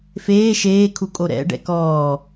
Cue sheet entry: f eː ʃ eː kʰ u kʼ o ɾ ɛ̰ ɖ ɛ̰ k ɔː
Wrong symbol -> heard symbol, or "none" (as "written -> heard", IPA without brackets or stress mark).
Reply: none